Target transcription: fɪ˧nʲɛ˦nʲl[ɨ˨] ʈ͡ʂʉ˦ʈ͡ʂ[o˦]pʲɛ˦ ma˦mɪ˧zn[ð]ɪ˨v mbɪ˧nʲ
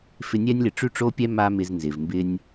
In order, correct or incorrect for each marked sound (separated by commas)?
incorrect, correct, incorrect